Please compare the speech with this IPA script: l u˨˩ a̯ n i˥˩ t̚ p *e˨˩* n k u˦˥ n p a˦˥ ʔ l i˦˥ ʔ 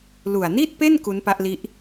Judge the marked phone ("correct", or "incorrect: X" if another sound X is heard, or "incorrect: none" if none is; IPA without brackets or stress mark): incorrect: e˥˩